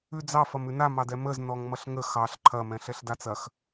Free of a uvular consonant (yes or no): yes